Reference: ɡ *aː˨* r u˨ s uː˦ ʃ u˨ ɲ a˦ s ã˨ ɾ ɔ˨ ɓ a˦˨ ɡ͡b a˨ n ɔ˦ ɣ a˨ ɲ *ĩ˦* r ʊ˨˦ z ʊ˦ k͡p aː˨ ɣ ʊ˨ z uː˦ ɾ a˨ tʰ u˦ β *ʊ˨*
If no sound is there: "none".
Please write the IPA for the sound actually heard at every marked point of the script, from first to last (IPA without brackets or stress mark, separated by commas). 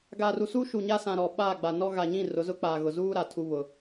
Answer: aː˨, ĩ˦˨, ʊ˨